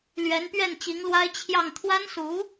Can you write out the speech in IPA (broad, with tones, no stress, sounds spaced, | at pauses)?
l ɥ ɛ˧˥ n p ɥ ɛ˥˩ n t͡ɕ i˧˥ ŋ l w a˥ ɪ̯ t͡ɕʰ j ɑ˥˩ ŋ t̪ʰ w a˥ n s u˧˥